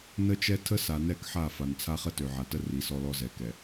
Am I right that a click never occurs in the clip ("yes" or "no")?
yes